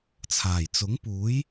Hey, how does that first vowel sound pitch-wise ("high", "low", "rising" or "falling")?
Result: low